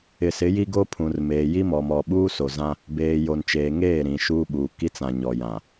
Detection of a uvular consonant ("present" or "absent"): absent